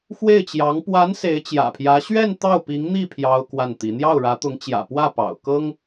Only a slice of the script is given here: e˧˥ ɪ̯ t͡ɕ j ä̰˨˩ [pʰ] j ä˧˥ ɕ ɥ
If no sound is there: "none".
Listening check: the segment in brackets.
pʰ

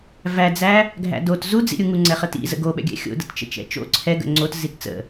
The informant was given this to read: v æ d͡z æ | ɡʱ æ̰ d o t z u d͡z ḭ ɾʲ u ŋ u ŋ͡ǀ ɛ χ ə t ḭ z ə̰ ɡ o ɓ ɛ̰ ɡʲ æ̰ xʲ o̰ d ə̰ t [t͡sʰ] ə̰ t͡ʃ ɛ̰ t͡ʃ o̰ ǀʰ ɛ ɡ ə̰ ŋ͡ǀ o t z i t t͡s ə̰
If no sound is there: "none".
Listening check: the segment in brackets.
t͡ʃ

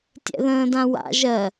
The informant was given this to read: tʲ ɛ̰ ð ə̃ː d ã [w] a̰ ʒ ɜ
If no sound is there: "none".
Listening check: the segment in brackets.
w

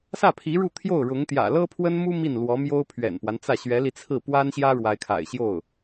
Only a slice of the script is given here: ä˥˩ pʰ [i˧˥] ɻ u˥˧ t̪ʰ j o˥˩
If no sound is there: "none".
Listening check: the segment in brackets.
i˧˥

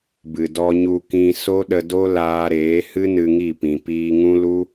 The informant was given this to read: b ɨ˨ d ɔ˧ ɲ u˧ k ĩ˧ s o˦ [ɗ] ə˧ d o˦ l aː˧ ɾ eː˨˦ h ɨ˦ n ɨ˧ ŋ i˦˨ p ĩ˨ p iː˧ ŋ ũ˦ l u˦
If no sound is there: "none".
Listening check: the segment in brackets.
ɗ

